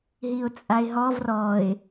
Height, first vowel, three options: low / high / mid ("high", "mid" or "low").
high